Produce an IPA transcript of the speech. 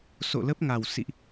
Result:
so̰˧˨lə˦˥p̚ŋa˨˩w sḭ˧˨ʔ

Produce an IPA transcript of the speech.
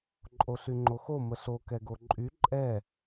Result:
ǃʼoɬyŋ͡ǃoxo məɬo kɛɡoǃʼy ǃʼɛ

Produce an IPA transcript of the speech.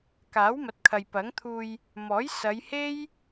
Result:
kaː˨˥wmɐ˨˥t̚kʰɐ˨j pɐ˨˥ŋ t̪ʰuː˧j | mɔː˨˥j sɐ˨˧jhe˥j

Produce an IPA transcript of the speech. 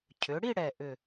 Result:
cʰʏ˩˧ ɽi˥˧ɽɛ˨˩ʔʏ˨˩

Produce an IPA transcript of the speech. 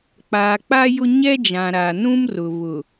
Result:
k͡paː˨k͡pa˦jʊ˦ ɲɛ˦d͡ʒã˨ɾaː˨nũ˦m rʊ˨βʊ˨

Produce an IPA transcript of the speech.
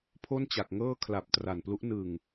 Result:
pʰo˥˩nt͡ɕa˨˩k̚ŋɤː˥˩ kʰla˨˩p̚ tra˨˩nplu˦˥ʔ nɯ˨˩ŋ

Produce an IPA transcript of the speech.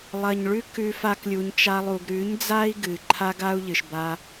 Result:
lˠɐ˨ɲɭʉ˦kʉ˧ fa˦klʲu˧ɲt͡ʃa˦lˠu˧ɡ ɾʉ˨˦ɲd͡za˦i̯ɡɨ˨ ǃʰa˦ɡa˦u̯ʎɨ˨ʃ ba˧

